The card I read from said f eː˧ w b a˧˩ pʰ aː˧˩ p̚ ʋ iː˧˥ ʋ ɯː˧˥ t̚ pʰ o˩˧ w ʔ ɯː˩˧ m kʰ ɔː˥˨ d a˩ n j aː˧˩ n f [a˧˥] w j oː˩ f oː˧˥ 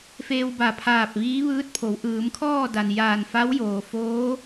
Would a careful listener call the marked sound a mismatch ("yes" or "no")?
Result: no